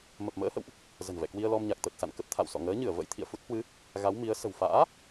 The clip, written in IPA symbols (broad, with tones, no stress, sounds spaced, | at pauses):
m ə˨˩ p̚ m ə̰ː˧˥ h ə̰˧˨ w ʔ | z ə̤˨˩ n v ɛ̰˧˨ k w i˧ ə̯ l ɔ˧ m ɲ a˨˩ k̚ t̪ ə˨˩ t̚ s a̰˧˨ n k ə˦˥ p̚ t̪ʰ a̰˧˨ w s ɔ̰˧˨ ŋ əː˨˦ ɲ ɨ˧˩ ə̯ v ə̰˧˥ j t̪ʰ ḭ˧˨ ə̯ f u˦˥ t̚ h w ɨ˨˦ | ɣ a˨˦ w m i˨˦ ə̯ s ə̤˨˩ w f a̰ː˧˥